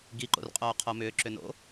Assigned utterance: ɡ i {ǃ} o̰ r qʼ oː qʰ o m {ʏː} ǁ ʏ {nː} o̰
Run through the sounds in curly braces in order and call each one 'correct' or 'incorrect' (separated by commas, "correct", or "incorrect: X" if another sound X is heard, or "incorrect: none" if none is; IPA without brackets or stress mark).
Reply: correct, correct, incorrect: n